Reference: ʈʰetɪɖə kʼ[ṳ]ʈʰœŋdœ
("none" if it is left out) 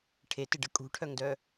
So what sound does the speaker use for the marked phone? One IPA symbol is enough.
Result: ṳ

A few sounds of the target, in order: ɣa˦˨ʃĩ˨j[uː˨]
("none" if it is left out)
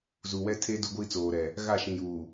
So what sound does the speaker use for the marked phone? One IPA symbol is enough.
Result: uː˨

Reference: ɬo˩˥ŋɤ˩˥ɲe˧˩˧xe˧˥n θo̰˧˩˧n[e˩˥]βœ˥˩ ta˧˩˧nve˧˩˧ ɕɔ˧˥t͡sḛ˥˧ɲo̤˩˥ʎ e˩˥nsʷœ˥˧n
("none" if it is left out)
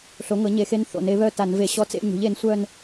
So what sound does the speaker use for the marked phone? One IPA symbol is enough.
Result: e˩˥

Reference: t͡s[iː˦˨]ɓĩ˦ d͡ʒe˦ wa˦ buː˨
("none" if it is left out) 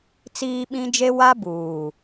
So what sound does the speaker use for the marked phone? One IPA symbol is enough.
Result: iː˦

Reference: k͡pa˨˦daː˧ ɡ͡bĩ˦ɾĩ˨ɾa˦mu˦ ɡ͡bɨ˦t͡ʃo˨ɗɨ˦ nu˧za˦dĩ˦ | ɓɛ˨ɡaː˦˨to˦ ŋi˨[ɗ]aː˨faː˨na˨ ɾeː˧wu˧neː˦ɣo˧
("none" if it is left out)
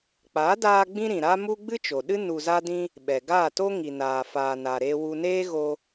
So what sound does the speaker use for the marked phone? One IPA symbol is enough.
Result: n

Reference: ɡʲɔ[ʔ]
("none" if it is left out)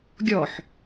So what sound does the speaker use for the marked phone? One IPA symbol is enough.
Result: ħ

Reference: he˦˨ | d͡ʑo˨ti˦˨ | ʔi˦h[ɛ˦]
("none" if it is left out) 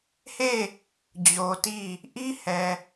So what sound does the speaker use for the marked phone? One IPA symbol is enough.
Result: ɛ˨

